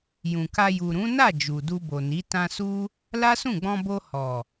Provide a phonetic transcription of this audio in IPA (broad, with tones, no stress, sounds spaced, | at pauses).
j ũ˨ k a˧ j u˨ ɾ ũ˨˦ n a˦˨ d͡ʒ u˨ d u˧ b o˨ n i˨˦ t ã˧ s u˦ | l a˦ s ũ˦˨ ɡ͡b ɔ̃˧ b o˧ h ɔ˨